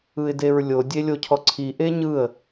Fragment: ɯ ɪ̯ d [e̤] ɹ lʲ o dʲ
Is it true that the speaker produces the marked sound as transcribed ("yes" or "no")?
no